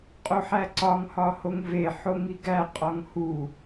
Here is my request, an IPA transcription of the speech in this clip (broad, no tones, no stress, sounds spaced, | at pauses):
qʼ o ħ æ ǀ ɒ ŋ h ɒ h o ŋ v e ħ o ŋ i ɡ æ qʼ ɒ ŋ h u